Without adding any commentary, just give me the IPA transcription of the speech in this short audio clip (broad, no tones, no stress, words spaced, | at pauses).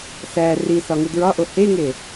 sæ risɒ ŋudɹɒʔo heŋe